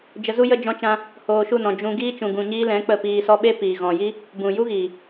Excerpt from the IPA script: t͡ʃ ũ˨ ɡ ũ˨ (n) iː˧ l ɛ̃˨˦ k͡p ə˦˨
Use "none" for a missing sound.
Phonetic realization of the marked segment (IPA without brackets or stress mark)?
ɲ